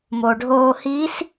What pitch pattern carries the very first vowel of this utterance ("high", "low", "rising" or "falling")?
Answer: low